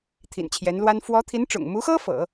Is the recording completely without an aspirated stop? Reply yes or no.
no